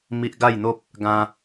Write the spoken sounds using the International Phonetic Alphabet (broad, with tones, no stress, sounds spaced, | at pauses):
m i˦ ʔ ɡ a˥˧ j n̪ o˦ p̚ | ɡ ã˦